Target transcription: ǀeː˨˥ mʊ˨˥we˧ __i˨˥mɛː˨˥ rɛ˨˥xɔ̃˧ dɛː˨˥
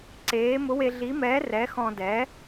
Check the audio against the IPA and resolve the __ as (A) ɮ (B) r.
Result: A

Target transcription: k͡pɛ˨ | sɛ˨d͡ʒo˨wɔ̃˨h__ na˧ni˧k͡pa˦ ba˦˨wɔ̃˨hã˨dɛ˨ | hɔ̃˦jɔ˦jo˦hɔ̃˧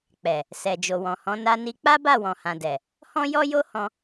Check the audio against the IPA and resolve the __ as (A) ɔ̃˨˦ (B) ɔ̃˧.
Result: A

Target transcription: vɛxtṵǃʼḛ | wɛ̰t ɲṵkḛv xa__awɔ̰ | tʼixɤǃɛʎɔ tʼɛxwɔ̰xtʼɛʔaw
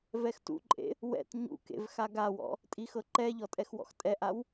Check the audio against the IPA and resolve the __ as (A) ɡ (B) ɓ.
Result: A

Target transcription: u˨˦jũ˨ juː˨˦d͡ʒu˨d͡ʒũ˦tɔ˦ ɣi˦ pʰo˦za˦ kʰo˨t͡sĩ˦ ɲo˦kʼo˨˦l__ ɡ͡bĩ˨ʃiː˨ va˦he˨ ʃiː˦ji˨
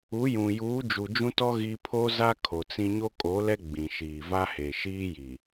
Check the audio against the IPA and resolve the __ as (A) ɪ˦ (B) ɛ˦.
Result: B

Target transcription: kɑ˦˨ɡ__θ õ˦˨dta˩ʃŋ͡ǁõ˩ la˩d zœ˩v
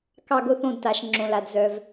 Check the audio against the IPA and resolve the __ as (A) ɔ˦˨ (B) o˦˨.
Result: B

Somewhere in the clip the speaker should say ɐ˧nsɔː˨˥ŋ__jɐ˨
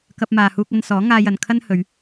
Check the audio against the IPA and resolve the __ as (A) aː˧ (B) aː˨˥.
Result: A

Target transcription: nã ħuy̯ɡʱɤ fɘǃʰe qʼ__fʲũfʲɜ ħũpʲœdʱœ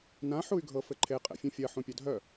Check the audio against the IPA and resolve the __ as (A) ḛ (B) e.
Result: A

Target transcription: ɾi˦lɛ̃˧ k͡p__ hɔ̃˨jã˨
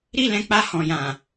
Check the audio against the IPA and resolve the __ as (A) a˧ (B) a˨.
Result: A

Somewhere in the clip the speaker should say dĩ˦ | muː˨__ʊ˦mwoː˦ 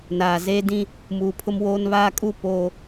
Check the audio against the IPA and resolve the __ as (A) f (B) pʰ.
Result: B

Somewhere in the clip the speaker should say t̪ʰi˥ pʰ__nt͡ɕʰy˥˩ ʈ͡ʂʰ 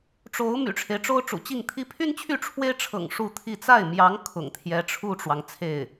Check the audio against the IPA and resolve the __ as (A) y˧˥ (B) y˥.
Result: B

